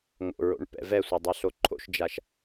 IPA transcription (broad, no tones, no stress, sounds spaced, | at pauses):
ŋ o̰ ɹ o̰ ɳ p ɛ̰ v ɛ sʷ ɛ dˤ ɛ ɬ o ǃʰ o̰ ʃ d͡ʒ a ʃ